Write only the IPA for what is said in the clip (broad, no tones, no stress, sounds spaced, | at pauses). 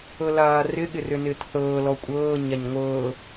ɤ l aː r ɪ ɠ ɪ r ʏ n ɪː t θ ɤː l ɔ kʷʼ ɤː ɲ a ɲ ŋʷ ɤː